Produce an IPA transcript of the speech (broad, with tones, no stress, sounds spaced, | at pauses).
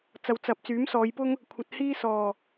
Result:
t͡s ɐ˨ w t͡s ɐ˨ p̚ t͡s yː˨˥ m s ɔː˨˧ j p ʊ˥ ŋ | kʷʰ ɐ˨ t̚ h iː˥ s ɔː˨˩